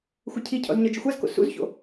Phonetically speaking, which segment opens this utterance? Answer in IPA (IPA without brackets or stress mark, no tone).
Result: xʷ